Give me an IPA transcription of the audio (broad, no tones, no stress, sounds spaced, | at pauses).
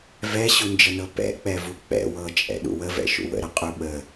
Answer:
v ɛ ɕ u n d͡ʒ ə n ɤ p ɛ̰ k͡p ɛ v u k͡p ɛ̰ w ɤ t͡ʃʼ ɛ̰ ɗ ṵ w ə v ɛ̰ ʃ ṵ w ə̰ ɾ ə qʼ u ɓ ə